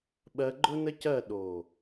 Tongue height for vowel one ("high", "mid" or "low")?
mid